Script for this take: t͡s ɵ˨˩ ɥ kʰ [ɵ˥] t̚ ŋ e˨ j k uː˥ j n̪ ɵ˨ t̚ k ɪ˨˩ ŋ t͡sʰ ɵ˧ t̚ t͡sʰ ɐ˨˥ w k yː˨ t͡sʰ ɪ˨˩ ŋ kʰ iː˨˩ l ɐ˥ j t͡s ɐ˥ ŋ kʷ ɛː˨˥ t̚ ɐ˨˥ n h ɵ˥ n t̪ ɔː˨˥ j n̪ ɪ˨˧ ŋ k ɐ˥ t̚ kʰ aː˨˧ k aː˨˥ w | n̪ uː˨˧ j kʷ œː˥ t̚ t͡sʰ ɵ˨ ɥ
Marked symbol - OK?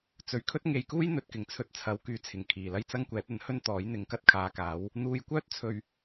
yes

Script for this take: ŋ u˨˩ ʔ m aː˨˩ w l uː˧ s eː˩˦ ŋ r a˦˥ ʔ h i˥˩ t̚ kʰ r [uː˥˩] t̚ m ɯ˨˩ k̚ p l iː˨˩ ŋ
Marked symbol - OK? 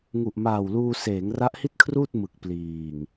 yes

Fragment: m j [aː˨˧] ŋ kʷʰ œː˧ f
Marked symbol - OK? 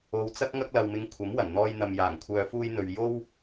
no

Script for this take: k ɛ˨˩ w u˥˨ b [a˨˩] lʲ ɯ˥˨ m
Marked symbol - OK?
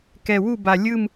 yes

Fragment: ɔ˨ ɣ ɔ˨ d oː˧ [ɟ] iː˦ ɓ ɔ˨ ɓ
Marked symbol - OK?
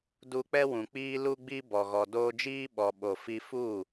no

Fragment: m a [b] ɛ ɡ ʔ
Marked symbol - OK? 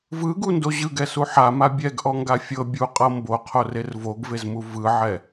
no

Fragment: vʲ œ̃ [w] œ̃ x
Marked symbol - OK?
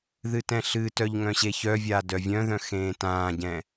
no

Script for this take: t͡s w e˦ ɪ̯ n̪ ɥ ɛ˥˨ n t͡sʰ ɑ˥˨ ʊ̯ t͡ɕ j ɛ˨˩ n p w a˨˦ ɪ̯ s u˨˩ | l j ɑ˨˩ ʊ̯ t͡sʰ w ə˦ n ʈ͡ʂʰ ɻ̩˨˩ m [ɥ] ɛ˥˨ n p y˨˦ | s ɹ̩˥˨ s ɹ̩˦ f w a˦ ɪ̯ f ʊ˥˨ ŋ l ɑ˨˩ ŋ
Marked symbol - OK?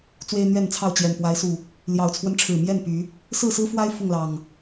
no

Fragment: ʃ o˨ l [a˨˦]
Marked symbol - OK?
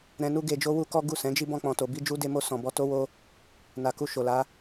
yes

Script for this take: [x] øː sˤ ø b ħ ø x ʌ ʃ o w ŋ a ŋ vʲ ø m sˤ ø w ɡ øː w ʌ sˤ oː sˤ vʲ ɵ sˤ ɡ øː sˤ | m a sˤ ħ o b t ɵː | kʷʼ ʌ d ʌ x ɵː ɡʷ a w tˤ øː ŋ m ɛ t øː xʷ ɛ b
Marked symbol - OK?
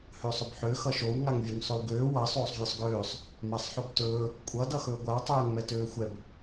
no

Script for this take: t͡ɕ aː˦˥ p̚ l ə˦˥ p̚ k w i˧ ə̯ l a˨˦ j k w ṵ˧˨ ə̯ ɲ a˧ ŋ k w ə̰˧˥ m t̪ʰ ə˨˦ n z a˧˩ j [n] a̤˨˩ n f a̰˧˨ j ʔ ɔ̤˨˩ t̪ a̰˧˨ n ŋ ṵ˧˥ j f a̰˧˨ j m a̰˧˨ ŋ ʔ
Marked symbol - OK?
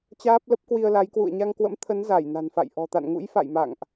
yes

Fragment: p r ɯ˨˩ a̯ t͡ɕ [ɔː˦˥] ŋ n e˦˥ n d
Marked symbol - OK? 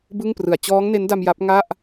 yes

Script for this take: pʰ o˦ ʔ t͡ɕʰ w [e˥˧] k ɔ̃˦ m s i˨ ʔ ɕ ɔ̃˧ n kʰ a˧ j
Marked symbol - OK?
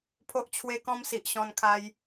no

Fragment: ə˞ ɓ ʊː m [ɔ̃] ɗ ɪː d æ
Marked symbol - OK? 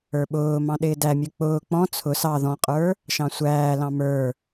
no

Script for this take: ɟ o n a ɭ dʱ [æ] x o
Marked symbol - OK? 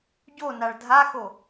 no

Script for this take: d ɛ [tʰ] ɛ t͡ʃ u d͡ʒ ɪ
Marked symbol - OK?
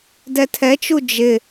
yes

